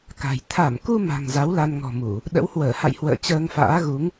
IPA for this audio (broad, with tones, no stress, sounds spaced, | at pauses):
k a̤˨˩ j t̪ʰ a˧˩ m k u˧ m a̤˨˩ ŋ z a˨˦ w l a˧ n ŋ ɔ̤˨˩ m u˧˩˨ | ɗ ə̰˧˥ w h w əː˧˩ h a̰˧˨ j h w ə̰ː˧˨ t͡ɕ əː˧ ŋ f a̰ː˧˥ ɣ u˨˦ ŋ